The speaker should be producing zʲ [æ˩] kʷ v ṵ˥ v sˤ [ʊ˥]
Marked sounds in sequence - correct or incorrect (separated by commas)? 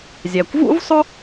correct, correct